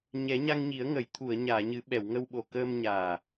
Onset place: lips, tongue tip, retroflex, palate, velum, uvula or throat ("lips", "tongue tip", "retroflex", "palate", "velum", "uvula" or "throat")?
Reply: palate